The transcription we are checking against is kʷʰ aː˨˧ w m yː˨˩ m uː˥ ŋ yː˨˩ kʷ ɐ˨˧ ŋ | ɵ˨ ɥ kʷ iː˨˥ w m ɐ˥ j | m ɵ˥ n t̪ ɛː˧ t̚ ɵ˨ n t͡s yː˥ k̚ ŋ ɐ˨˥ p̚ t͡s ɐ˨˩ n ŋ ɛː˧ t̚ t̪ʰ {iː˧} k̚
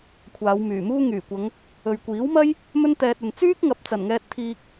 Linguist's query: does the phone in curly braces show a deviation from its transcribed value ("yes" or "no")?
no